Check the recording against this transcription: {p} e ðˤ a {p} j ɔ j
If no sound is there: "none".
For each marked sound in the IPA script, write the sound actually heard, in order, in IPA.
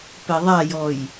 p, none

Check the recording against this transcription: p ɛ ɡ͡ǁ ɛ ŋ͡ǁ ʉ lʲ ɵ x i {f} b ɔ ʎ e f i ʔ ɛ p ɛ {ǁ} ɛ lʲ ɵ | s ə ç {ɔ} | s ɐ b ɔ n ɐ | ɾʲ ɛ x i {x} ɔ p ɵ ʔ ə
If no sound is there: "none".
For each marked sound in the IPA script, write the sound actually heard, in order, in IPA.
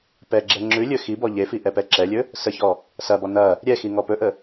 none, ǁ, ɔ, ŋ

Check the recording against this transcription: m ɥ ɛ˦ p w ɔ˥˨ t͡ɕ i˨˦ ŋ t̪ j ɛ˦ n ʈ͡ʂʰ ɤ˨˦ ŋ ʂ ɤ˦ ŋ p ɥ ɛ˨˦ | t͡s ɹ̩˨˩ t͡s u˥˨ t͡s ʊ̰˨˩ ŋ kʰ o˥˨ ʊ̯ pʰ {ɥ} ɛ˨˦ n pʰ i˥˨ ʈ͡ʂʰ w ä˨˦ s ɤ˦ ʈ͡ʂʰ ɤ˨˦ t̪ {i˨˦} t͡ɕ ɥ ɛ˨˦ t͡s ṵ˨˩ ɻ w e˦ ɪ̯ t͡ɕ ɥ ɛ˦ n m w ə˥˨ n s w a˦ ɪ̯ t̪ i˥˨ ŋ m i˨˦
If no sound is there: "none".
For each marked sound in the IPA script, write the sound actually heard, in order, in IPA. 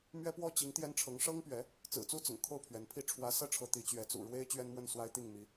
ɥ, i˨˦

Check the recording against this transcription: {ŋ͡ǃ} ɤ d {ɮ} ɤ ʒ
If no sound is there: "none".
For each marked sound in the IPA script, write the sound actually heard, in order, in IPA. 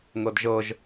ŋ, ʒ

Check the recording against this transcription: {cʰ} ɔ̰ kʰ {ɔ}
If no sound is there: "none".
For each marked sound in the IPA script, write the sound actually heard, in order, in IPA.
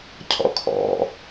cʰ, ɔ̰

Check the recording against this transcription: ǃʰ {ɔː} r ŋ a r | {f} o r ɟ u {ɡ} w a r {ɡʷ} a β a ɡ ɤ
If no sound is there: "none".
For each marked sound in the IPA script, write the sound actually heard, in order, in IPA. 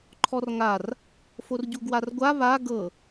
ɔ, f, ɡ, ɡʷ

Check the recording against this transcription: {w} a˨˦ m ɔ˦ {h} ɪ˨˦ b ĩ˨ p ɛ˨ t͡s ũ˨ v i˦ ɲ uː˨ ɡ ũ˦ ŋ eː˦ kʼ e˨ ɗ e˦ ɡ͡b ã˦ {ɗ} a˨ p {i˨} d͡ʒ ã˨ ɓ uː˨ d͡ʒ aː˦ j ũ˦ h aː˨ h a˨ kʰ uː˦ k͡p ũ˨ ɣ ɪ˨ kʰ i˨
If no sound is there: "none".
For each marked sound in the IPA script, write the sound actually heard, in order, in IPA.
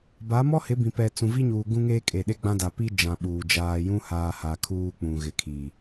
b, h, d, i˦

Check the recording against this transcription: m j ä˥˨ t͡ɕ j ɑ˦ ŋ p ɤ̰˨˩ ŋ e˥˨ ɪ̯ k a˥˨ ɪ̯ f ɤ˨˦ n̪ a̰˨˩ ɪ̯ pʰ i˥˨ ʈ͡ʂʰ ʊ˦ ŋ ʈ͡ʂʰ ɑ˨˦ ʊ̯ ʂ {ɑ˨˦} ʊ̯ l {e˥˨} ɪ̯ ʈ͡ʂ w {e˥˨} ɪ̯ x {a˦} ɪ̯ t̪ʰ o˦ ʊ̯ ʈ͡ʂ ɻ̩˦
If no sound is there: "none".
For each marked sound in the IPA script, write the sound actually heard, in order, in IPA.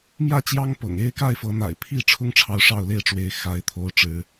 ɑ˥˨, e˥˨, e˨˦, a˦

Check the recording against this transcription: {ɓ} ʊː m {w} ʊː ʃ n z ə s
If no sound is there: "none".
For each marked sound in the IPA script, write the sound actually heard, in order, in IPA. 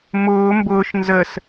m, b

